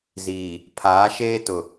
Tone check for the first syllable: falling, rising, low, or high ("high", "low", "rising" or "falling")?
low